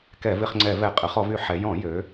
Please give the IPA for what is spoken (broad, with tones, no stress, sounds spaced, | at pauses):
k ɛ˧˩˧ v ɪ˧˩˧ χ ŋ͡ǀ ɛ˧˩˧ v ɛ˧˩˧ qʼ ə˩˧ χ ɔ˩˧ v y˧˩˧ ħ ɛ˩˧ j ɔ̃˧˩˧ j ø˩˧